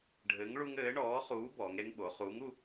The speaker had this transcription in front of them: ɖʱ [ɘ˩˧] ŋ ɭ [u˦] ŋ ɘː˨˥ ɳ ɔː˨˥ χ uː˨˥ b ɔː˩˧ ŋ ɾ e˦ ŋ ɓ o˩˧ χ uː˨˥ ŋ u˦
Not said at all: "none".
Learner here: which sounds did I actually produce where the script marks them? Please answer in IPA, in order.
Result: ɘ˨˥, u˦

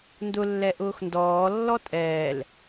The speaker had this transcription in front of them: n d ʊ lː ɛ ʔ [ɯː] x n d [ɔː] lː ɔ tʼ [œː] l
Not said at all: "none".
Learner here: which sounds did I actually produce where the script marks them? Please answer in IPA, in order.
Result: ʊː, ɔː, ɛː

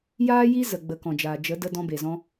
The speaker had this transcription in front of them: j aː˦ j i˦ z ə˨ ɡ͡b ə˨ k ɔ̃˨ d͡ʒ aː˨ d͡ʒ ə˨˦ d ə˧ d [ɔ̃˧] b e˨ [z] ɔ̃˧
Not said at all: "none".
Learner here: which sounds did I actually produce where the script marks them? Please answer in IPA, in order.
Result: ɔ̃˧, z

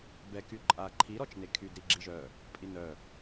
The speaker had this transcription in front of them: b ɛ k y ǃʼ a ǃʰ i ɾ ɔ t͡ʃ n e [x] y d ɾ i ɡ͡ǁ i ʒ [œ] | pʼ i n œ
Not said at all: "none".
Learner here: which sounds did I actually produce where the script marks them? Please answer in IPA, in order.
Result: kʰ, œ

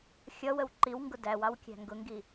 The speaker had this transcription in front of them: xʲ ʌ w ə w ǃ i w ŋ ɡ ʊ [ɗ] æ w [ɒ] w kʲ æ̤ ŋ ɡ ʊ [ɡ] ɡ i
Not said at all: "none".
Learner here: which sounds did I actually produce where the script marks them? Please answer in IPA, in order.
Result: d, ɑ, ŋ

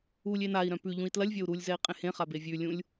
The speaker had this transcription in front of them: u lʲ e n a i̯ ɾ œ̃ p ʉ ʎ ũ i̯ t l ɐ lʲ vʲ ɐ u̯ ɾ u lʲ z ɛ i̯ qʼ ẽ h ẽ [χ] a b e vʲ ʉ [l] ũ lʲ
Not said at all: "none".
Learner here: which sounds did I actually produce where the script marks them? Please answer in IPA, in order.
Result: χ, lʲ

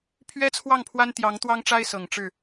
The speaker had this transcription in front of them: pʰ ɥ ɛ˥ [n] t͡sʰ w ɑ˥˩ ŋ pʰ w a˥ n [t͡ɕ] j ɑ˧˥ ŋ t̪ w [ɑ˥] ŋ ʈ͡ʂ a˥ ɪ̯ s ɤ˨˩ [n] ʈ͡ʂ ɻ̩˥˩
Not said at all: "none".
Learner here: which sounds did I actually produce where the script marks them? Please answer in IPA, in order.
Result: none, t̪, ɑ˥, ŋ

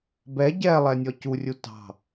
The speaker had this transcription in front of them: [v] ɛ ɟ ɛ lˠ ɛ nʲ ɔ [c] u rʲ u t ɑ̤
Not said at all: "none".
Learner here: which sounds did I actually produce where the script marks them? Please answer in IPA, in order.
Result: b, c

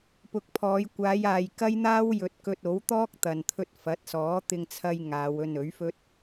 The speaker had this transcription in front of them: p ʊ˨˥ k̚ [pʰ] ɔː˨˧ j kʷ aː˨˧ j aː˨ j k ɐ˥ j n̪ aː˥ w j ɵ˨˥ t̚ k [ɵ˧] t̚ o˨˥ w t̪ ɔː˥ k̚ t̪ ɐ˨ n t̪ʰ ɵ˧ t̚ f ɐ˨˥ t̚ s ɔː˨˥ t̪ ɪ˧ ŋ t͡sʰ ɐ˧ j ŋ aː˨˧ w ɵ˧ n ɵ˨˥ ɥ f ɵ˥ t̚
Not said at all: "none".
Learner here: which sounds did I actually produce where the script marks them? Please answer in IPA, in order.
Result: pʰ, ɵ˧

